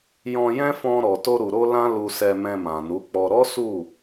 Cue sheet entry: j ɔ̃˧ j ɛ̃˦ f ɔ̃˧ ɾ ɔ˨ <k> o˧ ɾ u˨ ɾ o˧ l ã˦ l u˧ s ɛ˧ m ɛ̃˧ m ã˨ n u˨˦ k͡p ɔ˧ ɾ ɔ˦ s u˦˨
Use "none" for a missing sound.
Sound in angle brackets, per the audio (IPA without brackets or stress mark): t